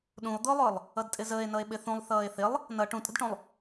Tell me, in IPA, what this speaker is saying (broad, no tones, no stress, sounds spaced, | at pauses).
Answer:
ɗ ũ o̯ d̪ ʊː lˠ ʊː lˠ | ʌ d tʼ ɪ z əː e̯ n ʌ e̯ ɓ ɪ θ ũ lˠ θ ʌː e̯ θ ɪ lˠ | n ʌ ʈ ũ tʼ ə̤ d ʈ ũ lˠ